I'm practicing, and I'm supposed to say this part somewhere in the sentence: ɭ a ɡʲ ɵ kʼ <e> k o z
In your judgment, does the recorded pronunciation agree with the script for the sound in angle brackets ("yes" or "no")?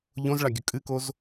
no